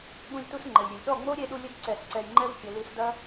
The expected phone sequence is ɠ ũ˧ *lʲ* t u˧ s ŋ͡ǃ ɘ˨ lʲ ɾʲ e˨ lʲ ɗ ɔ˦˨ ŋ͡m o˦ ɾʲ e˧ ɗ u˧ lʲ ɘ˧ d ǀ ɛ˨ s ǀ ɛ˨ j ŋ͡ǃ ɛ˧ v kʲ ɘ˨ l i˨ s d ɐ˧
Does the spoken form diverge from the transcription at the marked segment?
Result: no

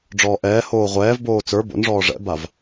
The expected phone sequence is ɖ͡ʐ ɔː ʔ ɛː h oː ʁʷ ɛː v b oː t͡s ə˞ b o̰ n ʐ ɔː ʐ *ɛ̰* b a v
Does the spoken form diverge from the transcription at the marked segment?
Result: no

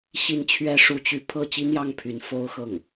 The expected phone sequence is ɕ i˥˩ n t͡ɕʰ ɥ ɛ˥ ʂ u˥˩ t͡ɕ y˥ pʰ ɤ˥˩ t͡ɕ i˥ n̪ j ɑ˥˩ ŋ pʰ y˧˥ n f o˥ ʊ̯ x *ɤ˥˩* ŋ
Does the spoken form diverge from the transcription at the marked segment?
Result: no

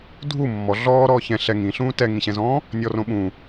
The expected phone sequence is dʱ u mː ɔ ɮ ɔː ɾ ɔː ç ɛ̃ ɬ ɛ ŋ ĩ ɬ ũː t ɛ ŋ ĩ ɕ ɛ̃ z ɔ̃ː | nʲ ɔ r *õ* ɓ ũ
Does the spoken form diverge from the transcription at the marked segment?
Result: no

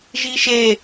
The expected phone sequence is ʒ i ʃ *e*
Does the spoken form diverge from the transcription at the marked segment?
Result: no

